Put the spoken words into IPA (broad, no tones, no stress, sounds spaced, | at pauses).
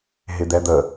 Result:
ɦ ɪ d̪ ɛ d̪ ə